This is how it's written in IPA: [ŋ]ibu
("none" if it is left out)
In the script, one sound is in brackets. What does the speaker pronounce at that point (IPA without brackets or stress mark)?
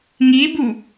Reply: ŋ